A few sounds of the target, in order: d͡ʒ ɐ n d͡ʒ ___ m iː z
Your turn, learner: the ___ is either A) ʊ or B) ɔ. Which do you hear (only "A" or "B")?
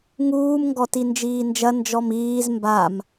B